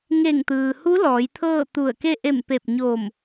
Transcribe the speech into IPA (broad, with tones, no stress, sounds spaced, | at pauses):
ŋ e˧˩ ŋ t̪ ɯː˩ h u˧˥ l ɔː˩˧ j t̪ʰ ɤː˥˨ t̪ u˧˩ ə̯ k e˥˨ ʔ e˧˩ m p e˧˩ p̚ ɲ o˧˩ m